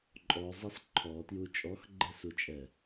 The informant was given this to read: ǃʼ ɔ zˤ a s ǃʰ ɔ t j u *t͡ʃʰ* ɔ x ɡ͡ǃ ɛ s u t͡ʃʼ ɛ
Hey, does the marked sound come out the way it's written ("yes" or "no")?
no